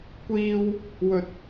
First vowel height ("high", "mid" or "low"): high